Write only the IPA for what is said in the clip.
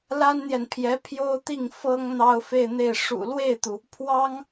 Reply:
l a˥ n n̪ j ɛ˨ n pʰ j ɛ˧˥ pʰ j o˥ ʊ̯ t̪ i˥˩ ŋ f ɤ˥ ŋ n̪ ɑ˥ ʊ̯ f e˥˧ ɪ̯ n̪ e˥˩ ɪ̯ ʂ ṵ˨˩ l w e˥˩ ɪ̯ t̪ u˩ | pʰ w ɑ˥ ŋ

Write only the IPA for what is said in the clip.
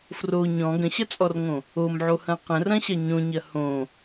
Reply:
f r o ɲ ɔ̃ ɡ ə̃ ɕ ɐ t͡sʼ ɔ r ŋ õ | o m ʕ o h ɐ̃ q ə̃ r ɐ̃ ɕ ɐ ɲ õ ɲ ɐ h õ

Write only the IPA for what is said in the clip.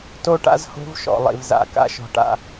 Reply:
t o˦ ʈ a̰˦ z h o̤˦ v ʃ ɔ̰˨ lˠ ḭ˨ v z a̰˨ k a̰˦ ʃ ɔ̤˨ ʈ a̰˦˨

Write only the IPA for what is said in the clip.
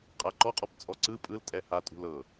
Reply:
qʼ a ǃ ɔ qʼ ɔ p t͡sʼ ɔ ǀ ɯ pʼ ɯ l tʼ ɛ h a tʼ ṳ l ɤ

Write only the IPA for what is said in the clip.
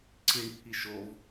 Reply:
ǀ i ɳ pʰ i ʃ o v

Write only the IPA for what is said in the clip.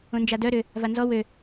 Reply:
õ n d͡ʒ a d œ ɾ ʏ | v a n z ɔ w ø

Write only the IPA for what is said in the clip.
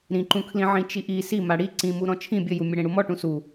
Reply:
ɾ ĩ ǃ ũ kʰ l ĩ ʕ ĩ t͡ʃ i ʔ i s i m a ɽ i ǀ ĩ m u ɾ ɔ̃ t͡ʃʰ ĩ bʲ ɘ j u mʲ ɘ ɽ ẽ ɽ u m ɔ ʈ ũ s u

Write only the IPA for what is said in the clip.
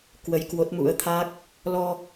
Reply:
k w ə˧ j k w o˦˥ t̚ m ṵ˧˥ ə̯ t̪ʰ a˦˥ k̚ | l ɔ˧

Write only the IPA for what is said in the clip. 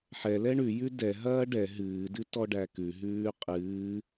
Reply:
ħ ɛ l ɛ ɳ ʉ j ʉ d ɛ ɦ ɐː ɖ ɛ ɦ ɨː d ɨ t ɔ ɖ æ k ʉ ɦ ʉː qʼ ɨː

